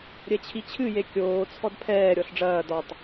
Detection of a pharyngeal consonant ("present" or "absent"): absent